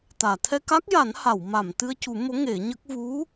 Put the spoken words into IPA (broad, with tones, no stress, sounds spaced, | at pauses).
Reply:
t̪ aː˨˩˨ t̪ʰ ɛ˧ k a˦˥ k̚ j a˨˩˦ n h a˨˩˨ w m a˨˩˨ m t̪ ɨ˧ ə̯ c u˨˩˦ m o˧˥ ŋ e˨˩˦ ɲ ə˦˥ k̚ v u˧˥